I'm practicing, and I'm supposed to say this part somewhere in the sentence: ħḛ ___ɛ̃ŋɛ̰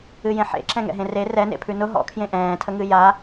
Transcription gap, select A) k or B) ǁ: B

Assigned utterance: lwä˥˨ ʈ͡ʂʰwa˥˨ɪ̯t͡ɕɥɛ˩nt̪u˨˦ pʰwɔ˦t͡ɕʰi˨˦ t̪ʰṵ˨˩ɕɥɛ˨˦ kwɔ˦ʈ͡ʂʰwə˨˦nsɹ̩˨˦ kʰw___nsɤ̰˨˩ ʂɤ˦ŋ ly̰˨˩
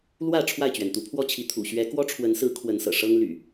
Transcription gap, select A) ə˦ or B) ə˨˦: B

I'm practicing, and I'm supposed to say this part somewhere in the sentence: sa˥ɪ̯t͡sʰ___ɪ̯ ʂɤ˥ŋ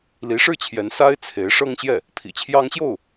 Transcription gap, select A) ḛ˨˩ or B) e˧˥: B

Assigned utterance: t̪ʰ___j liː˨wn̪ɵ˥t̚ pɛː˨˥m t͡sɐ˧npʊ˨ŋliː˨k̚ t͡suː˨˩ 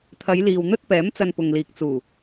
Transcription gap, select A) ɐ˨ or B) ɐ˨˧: B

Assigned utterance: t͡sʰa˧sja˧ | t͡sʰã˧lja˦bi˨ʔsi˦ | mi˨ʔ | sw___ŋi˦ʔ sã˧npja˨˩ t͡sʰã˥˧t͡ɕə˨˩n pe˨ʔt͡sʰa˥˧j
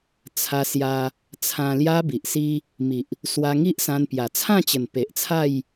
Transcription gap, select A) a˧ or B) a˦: A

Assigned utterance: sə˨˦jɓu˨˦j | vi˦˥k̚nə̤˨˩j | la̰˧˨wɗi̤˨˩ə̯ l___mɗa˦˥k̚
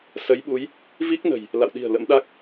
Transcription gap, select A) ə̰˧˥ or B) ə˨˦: A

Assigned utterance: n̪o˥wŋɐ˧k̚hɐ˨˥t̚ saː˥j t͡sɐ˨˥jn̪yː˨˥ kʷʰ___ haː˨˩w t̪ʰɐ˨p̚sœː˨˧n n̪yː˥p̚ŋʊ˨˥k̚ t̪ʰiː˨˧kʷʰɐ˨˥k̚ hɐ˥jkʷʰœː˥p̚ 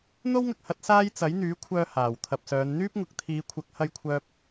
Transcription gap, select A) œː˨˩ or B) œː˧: B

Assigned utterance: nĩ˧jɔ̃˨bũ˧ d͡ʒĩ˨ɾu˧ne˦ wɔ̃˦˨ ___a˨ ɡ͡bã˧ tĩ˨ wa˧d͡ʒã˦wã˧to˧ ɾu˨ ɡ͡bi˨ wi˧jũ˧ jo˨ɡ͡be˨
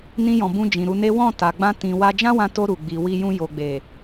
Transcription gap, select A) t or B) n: A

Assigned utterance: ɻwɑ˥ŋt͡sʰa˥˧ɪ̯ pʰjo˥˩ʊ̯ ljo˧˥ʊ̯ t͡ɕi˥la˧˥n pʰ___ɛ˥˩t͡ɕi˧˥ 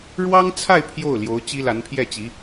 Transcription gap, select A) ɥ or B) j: B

